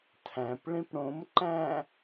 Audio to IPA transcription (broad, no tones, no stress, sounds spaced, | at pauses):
tʰ æ̃ p ɭ ĩ p ɽ õ m ǃ æ̃